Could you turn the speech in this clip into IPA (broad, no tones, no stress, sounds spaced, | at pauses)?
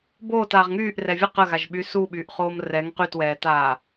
b oː t aː ʁ ŋ yː ʔ r ɛ vʲ ə q ə ɣ a ʒ ɓ y s u ɓ yː ʔ χ oː m r ɛ ŋ q y t w ɛː t aː